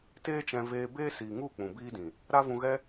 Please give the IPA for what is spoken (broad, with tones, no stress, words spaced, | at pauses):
teː˦t͡ʃɛ̃˧veː˧ beː˦siː˨ŋu˦˨ k͡pũ˨biː˦dĩ˨ | ɾa˦ vũ˧ɣɛ˦